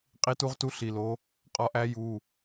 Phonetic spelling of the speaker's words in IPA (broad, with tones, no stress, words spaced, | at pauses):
qʼi˧˥tu˧˥ʁtu˧˥ ɬi˩˧˩lo˧˥ | qʼɒ˧˥ʔæ˧˥ju˩˧˩